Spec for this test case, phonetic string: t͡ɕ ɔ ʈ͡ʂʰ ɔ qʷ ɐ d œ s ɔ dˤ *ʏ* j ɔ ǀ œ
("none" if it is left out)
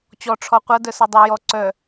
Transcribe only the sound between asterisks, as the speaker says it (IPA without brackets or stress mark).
u